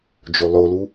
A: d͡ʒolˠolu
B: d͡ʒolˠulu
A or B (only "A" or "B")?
A